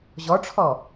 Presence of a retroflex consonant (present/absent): present